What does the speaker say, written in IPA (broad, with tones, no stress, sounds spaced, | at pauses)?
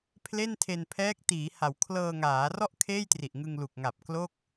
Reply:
pʰ l e˥˩ n tʰ e˧ n pʰ ɛː˦˥ k̚ t iː˩˦ h a˩˦ w kʰ l ɤː˧ ŋ aː˩˦ r ɔ˥˩ ʔ kʰ eː˥˩ j t r i˨˩ ʔ ŋ ɯ˧ ŋ l u˨˩ k̚ ŋ a˨˩ p̚ k l o˥˩ k̚